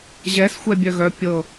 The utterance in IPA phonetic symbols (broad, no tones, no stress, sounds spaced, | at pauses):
ʑ ɛ s xʷ ɛ bʲ œ ɣ œ pʲ ɤ